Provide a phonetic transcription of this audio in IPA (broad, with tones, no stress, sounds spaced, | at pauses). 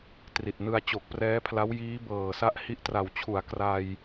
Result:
t r i˨˩ t̚ n ɯ˧ a̯ t͡ɕ o˨˩ k̚ p r ɛː˦˥ pʰ l a˦˥ w j iː˦˥ b ɤː˨˩ s a˦˥ ʔ h i˦˥ ʔ t r a˨˩ w t͡ɕʰ u˩˦ a̯ k r a˧ j